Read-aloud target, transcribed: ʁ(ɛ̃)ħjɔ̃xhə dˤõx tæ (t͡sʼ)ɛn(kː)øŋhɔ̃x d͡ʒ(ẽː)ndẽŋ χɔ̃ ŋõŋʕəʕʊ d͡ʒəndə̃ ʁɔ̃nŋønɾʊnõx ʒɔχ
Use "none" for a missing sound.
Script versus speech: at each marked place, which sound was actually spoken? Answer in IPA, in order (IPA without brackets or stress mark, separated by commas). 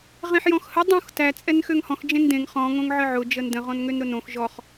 ẽ, t͡sʼ, x, ẽ